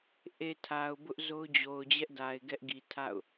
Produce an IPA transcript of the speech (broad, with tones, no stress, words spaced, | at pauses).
ʔe˨ tʰa˨ʊ̯bʊ˦ʔ zo˦ʊ̯d͡ʑo˨ʊ̯ d͡ʑɛ˦ʔda˨ɪ̯ ɡɛ˦ʔɡi˨tʰa̰˦˨ʊ̯